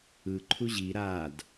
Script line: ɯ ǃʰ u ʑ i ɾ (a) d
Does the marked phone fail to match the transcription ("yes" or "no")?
no